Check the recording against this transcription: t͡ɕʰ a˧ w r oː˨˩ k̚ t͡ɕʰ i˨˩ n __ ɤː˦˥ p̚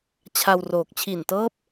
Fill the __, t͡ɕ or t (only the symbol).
t